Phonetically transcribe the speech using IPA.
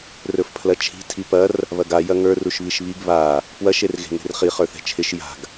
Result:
rɵfpʰlɐt͡ʃʰi̤ tʰipɐr | βɐɡa jɐŋə˞ ruʃβiʃβiɡ βa | pwɐʃ erɣe̤ŋe̤rχi χə˞θɛ̤t͡ʃʰɪʃ ja̤ɡ

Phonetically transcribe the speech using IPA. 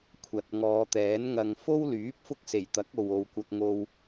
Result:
kʷʰɐ˨t̚ŋɔː˨˧t̪ɛː˨˥n ŋɐ˨ŋfo˥wlyː˨˥p̚ fʊ˥k̚se˨˩jt̪ɐ˨˥k̚o˨w o˨wkʷɐ˧k̚ ŋo˧w

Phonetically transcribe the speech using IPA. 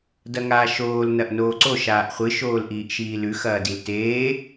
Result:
dɐŋaːʃoːl nɐʔnoːǀo ʃaːʔχʷɨ ʃoːlʔiːʔʃiːlʉ xɐːdilteː

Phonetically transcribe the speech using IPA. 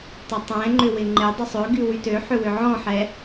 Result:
tˤʏtˤɛ̃ŋ͡ǃʏ wɪŋ͡ǃɪdˤʏ sˤøɡy wytøħʏ wʏʕɔ̃ħɛ

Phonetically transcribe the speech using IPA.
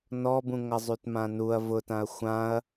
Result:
nɔbũŋʌzˤyt mãnuɐ̯ vʊtãɐ̯ xʷãɐ̯

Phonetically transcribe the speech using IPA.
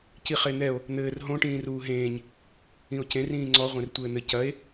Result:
ciχen̪ɛo̯ | n̪ɘːr ɦõ ʈĩːruːɦẽːɲ | ĩo̯cẽr ĩːŋ͡ǀɔ ʁʷẽrtʷɘːn̪ɘ cɐe̯

